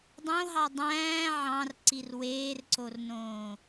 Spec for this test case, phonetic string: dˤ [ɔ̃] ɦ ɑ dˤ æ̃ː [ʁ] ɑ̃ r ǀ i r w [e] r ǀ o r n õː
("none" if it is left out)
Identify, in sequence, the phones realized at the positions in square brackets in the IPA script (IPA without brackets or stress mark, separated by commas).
õ, ʕ, eː